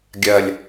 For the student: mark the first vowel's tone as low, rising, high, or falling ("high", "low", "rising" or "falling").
low